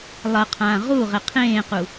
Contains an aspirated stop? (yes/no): yes